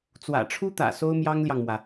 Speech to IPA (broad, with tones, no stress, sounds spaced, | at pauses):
t͡s w ä̰˨˩ ʈ͡ʂʰ u˥ t̪ ä̰˨˩ s o˥ ʊ̯ m j ɑ˥ ŋ l j ɑ˨ ŋ m w ä˩